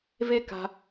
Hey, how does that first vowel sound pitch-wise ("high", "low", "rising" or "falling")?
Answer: high